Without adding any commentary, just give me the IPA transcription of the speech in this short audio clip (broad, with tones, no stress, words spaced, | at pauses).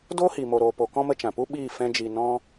doː˦hiː˨mo˨ ɾoː˨ po˨kɔ̃˧mə˧ t͡ʃã˨pu˦ ɓiː˦˨ fɛ̃˦d͡ʒi˧ nɔ̃˦